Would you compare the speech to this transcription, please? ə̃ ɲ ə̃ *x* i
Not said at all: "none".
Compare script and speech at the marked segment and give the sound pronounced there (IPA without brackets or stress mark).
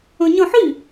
ħ